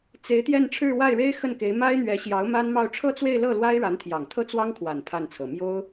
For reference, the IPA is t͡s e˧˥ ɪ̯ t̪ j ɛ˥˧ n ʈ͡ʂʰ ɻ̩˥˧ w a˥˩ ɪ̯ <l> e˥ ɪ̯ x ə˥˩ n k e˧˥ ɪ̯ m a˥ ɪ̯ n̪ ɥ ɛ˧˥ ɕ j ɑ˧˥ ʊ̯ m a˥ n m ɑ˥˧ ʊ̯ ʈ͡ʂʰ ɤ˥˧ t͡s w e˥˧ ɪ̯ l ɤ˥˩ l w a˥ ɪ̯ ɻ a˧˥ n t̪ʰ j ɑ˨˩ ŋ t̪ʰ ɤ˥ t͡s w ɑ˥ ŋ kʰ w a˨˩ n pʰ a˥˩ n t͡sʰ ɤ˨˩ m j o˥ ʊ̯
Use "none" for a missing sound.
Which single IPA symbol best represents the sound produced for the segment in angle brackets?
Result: ɻ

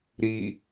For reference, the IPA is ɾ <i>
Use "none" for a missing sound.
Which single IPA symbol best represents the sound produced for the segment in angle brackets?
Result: i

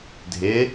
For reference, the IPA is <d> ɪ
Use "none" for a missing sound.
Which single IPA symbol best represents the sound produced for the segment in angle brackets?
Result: dʱ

